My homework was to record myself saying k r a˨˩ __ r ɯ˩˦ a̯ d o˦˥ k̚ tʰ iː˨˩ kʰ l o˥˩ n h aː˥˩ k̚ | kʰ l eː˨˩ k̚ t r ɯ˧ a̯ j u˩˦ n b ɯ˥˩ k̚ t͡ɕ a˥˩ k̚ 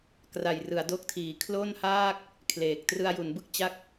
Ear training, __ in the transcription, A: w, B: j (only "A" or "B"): B